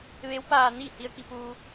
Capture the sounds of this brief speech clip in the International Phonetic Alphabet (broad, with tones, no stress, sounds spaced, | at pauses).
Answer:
ʋ e˧˥ w p aː˧ n iː˥˨ h i˧ ə̯ k i˧ p uː˧